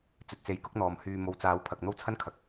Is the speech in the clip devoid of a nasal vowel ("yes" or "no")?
yes